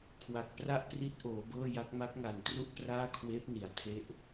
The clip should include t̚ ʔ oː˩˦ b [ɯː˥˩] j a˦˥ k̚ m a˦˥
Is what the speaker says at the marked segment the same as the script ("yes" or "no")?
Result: no